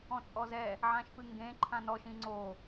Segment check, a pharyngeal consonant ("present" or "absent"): present